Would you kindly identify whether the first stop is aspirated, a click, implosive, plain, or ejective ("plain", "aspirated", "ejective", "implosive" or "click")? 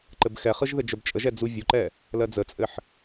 click